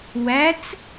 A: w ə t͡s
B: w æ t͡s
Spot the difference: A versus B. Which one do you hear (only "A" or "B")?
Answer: B